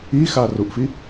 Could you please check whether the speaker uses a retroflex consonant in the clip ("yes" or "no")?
no